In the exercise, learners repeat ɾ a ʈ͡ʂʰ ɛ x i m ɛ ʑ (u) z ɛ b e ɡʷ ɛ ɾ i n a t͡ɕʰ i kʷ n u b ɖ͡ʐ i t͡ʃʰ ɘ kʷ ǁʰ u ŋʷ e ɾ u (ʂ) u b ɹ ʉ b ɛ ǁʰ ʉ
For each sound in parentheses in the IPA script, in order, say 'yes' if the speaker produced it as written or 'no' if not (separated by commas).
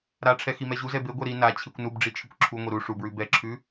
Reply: yes, yes